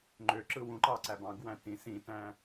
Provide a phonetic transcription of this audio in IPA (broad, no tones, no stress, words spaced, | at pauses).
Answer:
ŋ͡ǃøǁɯ wũ ǃɑǀæbɑ̃ɡwæ̃ tĩ sĩtæ̃